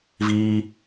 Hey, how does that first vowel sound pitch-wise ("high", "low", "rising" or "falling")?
high